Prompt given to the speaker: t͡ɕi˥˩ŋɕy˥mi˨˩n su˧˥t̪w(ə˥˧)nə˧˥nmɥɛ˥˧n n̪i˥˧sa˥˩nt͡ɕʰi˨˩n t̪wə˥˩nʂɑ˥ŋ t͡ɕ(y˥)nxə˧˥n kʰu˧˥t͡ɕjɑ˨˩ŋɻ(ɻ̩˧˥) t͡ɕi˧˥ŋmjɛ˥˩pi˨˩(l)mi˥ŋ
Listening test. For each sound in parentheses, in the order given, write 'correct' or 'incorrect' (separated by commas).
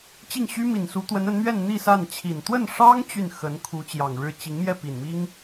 incorrect, incorrect, incorrect, incorrect